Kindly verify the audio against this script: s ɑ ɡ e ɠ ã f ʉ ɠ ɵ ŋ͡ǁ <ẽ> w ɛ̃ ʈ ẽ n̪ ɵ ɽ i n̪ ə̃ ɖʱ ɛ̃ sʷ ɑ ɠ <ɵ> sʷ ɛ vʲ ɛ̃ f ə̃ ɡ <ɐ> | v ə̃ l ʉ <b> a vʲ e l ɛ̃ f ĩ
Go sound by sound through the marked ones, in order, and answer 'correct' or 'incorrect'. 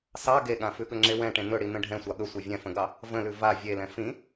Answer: incorrect: e, correct, incorrect: ɑ, incorrect: v

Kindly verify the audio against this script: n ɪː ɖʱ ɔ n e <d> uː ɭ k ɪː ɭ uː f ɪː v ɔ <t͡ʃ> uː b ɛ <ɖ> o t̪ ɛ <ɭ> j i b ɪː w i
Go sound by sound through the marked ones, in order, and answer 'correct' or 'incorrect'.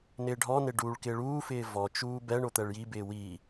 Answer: incorrect: ɖ, correct, incorrect: ɳ, correct

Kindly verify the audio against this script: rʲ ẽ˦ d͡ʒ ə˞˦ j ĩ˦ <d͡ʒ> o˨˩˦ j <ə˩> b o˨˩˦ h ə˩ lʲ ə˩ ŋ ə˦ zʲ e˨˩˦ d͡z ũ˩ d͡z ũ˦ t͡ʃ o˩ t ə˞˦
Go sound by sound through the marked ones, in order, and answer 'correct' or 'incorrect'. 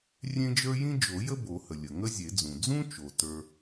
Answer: correct, incorrect: ə˦

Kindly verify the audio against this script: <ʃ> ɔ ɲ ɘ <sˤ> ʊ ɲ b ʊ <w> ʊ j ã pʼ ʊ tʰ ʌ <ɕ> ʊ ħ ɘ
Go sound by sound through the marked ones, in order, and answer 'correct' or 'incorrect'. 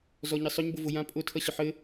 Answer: incorrect: z, correct, incorrect: v, correct

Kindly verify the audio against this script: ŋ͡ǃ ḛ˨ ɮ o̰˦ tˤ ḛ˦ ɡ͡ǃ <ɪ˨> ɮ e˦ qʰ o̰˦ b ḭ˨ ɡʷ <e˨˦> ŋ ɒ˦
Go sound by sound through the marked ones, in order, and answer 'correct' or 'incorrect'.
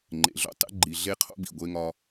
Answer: incorrect: i˨, incorrect: e˦

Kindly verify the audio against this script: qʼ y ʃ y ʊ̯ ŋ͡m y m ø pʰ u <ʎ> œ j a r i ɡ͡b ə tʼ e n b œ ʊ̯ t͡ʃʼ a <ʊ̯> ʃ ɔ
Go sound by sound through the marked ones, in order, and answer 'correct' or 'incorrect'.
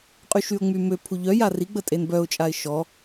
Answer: correct, incorrect: ɪ̯

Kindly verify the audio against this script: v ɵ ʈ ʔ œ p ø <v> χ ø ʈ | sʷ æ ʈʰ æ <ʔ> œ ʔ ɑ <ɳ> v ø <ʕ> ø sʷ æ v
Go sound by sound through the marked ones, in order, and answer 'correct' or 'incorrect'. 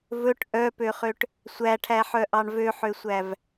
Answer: incorrect: none, incorrect: ħ, correct, incorrect: ħ

